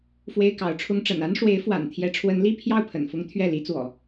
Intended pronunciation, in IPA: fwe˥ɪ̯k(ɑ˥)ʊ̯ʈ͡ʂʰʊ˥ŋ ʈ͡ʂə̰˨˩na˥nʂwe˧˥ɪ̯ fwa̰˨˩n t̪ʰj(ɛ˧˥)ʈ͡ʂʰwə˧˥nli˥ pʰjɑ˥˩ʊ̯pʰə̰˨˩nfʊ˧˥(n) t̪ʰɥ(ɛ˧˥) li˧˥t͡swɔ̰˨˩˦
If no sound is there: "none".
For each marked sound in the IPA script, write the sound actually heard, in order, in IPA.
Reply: ɑ˧˥, ɛ˧˥, ŋ, ɛ˥˩

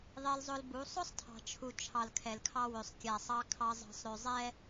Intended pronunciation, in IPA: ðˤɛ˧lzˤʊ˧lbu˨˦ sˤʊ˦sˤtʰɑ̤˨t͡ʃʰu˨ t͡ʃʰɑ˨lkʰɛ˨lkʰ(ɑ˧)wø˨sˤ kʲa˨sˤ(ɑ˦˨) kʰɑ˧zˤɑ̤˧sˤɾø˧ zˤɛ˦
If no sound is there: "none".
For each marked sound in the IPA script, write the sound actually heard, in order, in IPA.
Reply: ɑ˧, ɑ˧

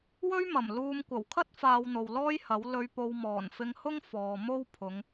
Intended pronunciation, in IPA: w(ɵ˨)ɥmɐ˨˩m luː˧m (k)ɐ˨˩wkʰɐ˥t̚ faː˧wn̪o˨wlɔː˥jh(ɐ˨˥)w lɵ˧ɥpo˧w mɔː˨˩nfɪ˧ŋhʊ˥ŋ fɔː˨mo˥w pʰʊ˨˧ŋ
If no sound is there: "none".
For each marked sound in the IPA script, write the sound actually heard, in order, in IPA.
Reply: ɵ˥, kʷ, ɐ˨˥

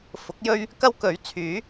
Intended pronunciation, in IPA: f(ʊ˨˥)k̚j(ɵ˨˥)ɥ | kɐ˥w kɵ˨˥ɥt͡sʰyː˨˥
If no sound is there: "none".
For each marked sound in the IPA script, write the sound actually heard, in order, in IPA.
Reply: ʊ˨˥, ɵ˥

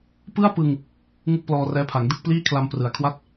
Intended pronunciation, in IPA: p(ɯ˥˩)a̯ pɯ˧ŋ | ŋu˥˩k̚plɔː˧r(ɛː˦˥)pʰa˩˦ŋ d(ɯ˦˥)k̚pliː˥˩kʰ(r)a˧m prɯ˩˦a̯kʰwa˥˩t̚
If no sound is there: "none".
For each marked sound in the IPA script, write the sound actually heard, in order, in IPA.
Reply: ɯ˥˩, ɛː˦˥, ɯ˥˩, l

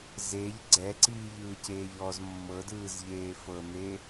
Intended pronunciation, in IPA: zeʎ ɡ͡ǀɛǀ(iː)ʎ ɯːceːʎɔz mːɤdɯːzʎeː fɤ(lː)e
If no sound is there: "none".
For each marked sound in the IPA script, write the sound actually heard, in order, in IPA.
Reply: iː, n̪

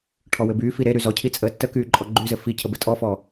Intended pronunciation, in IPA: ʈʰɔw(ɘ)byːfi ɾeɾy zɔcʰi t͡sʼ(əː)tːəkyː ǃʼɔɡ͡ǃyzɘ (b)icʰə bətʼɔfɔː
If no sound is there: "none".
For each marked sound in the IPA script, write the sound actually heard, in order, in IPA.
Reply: ɘ, əː, f

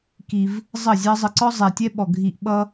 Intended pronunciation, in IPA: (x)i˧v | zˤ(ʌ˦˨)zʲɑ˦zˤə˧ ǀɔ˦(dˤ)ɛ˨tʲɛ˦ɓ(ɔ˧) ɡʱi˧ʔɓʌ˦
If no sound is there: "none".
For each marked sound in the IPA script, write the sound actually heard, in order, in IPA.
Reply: k, ʌ˦˨, zˤ, ɔ˨

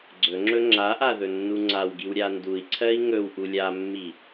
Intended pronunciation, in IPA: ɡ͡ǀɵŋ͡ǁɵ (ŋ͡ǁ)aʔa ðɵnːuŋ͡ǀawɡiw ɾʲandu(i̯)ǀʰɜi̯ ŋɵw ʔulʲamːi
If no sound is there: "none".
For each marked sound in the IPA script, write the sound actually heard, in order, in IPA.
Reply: ŋ͡ǁ, i̯

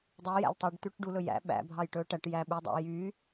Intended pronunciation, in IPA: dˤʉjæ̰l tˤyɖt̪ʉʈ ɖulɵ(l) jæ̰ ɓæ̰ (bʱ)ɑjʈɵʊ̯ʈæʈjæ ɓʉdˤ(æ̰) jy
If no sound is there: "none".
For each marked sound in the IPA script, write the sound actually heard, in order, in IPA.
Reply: none, bʱ, æ̰

